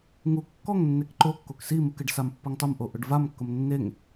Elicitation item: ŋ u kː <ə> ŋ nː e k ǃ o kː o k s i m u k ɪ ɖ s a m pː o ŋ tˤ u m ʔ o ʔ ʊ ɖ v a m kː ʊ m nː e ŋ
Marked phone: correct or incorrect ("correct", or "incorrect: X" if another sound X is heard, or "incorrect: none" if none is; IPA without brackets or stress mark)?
incorrect: ɔ